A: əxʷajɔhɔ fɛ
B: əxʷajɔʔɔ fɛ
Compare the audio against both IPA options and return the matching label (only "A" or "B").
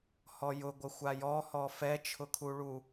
A